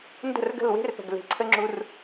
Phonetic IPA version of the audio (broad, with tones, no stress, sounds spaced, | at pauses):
n d ə̤˦˨ r ɡ ə̤˦˨ l w e̤˦ r p ə̤˨ ɡ l e̤˨ ǀʰ ə˦ ŋ͡ǁ u˦ r